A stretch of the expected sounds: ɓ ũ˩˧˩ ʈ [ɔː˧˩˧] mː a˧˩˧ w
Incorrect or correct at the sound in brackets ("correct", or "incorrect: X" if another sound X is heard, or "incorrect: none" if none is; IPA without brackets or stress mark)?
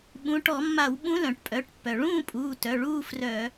incorrect: ɔ˧˩˧